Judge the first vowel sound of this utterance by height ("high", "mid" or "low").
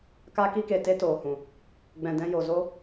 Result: low